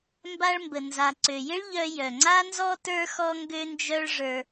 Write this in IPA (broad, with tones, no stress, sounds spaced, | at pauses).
m b a˧ ɭ m b ə˩ n z a˩ ǀ ø˩ j ɪ˥ ɭ ʎ œ˧ j œ˩ ŋ͡ǀ a˥ n z ɔ˥ t ə˞˥ x ɔ˥ ŋ ɡ ø˥ n d͡ʒ œ˥ ɭ ʐ ə˞˧